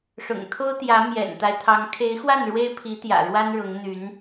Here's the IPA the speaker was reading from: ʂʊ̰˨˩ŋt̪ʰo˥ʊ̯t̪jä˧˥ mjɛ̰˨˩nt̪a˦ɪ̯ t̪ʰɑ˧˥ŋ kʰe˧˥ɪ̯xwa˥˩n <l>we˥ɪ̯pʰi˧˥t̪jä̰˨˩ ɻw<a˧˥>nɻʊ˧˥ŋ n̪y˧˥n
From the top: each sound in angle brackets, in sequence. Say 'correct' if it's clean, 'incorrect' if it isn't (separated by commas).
incorrect, incorrect